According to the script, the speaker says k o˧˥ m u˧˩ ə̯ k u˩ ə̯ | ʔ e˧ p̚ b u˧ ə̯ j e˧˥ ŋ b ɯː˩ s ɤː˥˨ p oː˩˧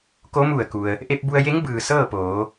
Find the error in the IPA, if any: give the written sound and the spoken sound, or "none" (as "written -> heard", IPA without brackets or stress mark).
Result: none